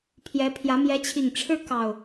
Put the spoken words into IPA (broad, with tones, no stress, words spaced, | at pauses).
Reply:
pʰjɛ˨˦pʰjä˨˦ mjɛ˨˦t͡ɕʰi˨˩ŋ ʈ͡ʂʰɻ̩˦kɑ˨˩ʊ̯